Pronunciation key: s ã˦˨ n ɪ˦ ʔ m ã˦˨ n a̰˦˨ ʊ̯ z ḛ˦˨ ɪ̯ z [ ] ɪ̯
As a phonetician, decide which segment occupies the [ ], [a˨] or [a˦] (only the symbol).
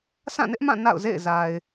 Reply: a˨